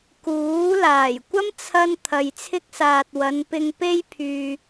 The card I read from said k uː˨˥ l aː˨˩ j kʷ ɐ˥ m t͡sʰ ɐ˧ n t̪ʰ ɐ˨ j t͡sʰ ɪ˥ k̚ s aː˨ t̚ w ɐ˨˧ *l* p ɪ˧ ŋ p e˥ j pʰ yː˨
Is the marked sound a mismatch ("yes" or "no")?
yes